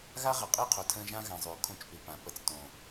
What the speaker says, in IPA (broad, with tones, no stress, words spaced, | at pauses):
ɣa˦ ʁə˨qʼi˦˨qʰo˨tʰə̃ː˧ ʒã˦ɣã˨zˤʉː˨ kʰõ˦t͡ʃpʉ˨pã˨ pə˧t͡stõː˨